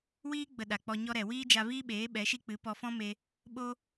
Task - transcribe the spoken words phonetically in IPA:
w iː˦ ɡ͡b ə˧ ɗ a˨ k͡p ɔ˧ ɲ ɔ˦ ɾ ɛ˨ w iː˦ d͡ʒ a˧ v iː˦ ɓ eː˨˦ ɓ ɛ˨˦ ʃ i˦ k͡p ɨ˨˦ p ɔ˧ f ɔ̃˦ m e˧ | ɓ o˧

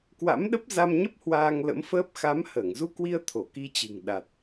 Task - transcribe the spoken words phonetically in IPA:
k w a̰˧˥ m ɗ ə˦˥ p̚ z a˧ m ɲ ə˦˥ p̚ h w aː˧ ŋ l ə̰˧˥ m f əː˦˥ p̚ x a˨˦ m h əː˧˩ ŋ z u˧ k w i˧ ə̯ t̪ʰ o˧˩ k i˧ t͡ɕ ɨ̤˨˩ ŋ ɗ a˨˩ t̚

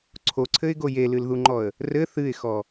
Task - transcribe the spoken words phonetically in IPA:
ǀʰ o ǀʰ ɘ ɪ̯ ɡ o j e l ɨ l ð u ŋ͡ǃ ɔ ə̯ | r ɘ θ ɨ ɪ̯ x ɔ

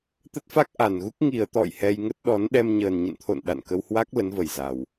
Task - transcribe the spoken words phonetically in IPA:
t̪ ə˦˥ t̚ f a˦˥ k̚ ʔ a˨˩ n ɣ u˦˥ k̚ ŋ i˨˩ ə̯ t̪ ɔ̰˧˨ j h ɛ˧ j ŋ ə˦˥ t̚ ɗ ɔ˨˦ n ɗ ɛ˧ m ɲ əː˨˩ n ɲ ə̰˧˨ n t̪ʰ o̰˧˨ n ɗ a̰˧˨ n k ə˧ w h w a˦˥ k̚ l ə˨˦ n v ə˨˩ j z a˨˩ w

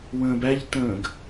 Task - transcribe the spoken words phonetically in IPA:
w ə̃ː b æ ʎ t ə̃ː ɡ

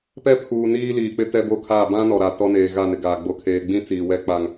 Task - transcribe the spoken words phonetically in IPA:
p ɛ˦ pʰ uː˨ n iː˦ l iː˨ k͡p ɪ˦ t ɛ˦ b o˦ kʰ aː˦˨ b ã˦ n ɔ˨ ɾ a˨ t ɔ˦ n eː˨ ɣ a˦˨ n ɪ˨ ɡ aː˨ ɡ͡b o˨ kʰ eː˨ ɡ͡b ĩ˦ t͡s iː˨ w ɛ˦ k͡p a˨ ŋ

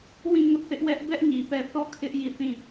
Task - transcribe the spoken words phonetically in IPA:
w ĩ˦˨ ŋ ʊ˦ ʔ θ ɪ˦ ʔ w ɛ˦ ʔ b ɛ˦ ʔ ɲ i˨ p ɛ˦˨ θ ɔ˦˨ kʰ ɪ˦ ʔ j i˦˨ θ ĩ˦˨

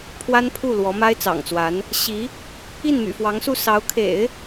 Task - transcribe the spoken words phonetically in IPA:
pʰ w a˥ n pʰ u˥˩ l w ɔ˧˥ m a˥ ɪ̯ t͡s ɑ̰˨˩ ŋ t͡s w a˧˥ n | ɕ i˧˥ | i˥˩ n m y̰˨˩ f w ɑ˧˥ ŋ s u˥˩ s ɑ˧˥ ʊ̯ kʰ ḛ˨˩˦ ɪ̯

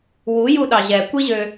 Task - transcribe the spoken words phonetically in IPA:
w u j u ɗ ɑ ʑ ɛ kʷ i ʑ ø

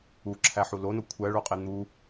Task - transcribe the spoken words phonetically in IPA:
u ǁʰ æ ħ u l o n o kʷʰ æ ɭ o qʼ e n̪ u

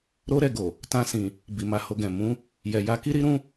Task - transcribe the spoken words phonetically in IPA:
ɾ o˦ ɾ ɛ˦˨ ɡ o˨ | t ã˧ s ĩ˨ | b i˨ m a˧ h o˧ ɡ ɛ̃˨ m ũ˨˦ | j ɛ˨ j a˧ k i˦ ɾ i˦ ɾ ũ˦

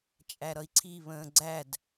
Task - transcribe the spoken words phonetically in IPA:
t͡ʃʼ æ ɾ ʌ i̯ ǀʰ i β ə̃ː ɡ͡ǀ æ d

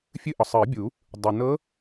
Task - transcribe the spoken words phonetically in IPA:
fʲ ɨ˧˥˧ ʔ ɒ˩ sˤ ɨː˨˩˦ bʲ u˨˩˦ | dˤ ɨ˩ n ɤ˧˥

